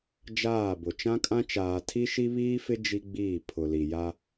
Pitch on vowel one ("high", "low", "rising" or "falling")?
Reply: falling